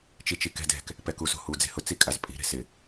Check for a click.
absent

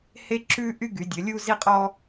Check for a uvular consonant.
present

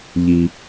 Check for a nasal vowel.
absent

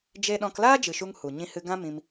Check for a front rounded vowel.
absent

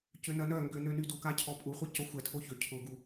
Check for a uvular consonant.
present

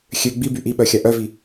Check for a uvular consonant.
absent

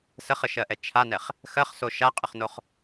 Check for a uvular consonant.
present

